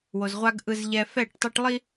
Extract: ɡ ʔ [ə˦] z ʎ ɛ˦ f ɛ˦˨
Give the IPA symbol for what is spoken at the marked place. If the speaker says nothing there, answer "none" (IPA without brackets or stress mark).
ɯ˦